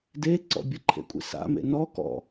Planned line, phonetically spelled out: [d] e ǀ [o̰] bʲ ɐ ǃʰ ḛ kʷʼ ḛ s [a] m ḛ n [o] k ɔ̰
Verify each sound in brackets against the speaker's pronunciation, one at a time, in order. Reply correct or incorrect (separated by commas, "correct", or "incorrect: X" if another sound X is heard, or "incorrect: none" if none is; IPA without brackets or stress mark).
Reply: correct, incorrect: ɔ̰, incorrect: a̰, incorrect: ɔ